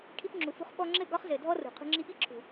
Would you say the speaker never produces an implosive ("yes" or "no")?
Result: no